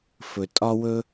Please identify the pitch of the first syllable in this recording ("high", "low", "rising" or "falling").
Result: low